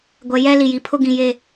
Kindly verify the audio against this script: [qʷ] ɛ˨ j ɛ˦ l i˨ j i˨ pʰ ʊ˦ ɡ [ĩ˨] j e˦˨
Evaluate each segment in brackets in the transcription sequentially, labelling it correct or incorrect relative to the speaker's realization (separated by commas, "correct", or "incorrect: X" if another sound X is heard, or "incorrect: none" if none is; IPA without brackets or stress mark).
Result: incorrect: ɡʷ, correct